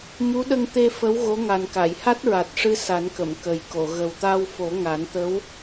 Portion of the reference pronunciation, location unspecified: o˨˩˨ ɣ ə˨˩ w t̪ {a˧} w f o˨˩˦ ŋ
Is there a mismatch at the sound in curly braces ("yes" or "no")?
no